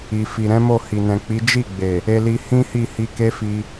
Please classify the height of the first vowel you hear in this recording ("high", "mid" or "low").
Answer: high